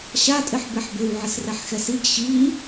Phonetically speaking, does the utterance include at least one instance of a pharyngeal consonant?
yes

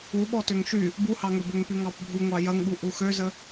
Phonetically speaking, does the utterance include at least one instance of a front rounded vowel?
yes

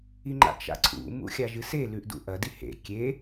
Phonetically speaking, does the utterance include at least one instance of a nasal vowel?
no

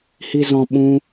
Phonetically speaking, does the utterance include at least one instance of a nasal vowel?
yes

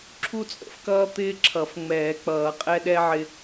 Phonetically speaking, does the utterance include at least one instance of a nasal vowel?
no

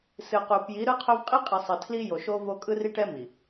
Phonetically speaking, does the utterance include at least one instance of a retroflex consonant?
yes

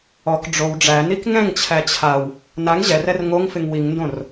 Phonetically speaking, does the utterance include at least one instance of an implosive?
no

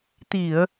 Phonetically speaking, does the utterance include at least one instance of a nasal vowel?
no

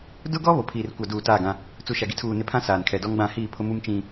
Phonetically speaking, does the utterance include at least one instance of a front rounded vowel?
no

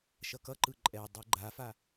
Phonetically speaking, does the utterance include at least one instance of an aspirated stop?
no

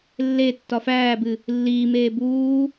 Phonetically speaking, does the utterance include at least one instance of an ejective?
no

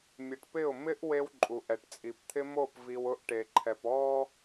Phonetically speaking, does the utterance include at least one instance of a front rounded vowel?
no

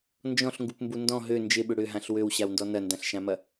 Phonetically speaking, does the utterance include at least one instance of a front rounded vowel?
yes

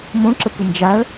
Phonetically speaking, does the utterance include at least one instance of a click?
yes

